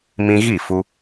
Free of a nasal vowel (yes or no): no